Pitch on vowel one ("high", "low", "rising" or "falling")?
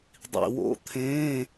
low